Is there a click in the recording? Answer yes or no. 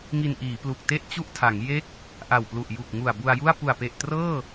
no